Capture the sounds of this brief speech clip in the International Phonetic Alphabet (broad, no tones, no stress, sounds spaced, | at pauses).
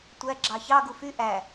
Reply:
tʷ æ ɡ͡ǁ ɑ ç ɑ ɡ u f y ʔ æ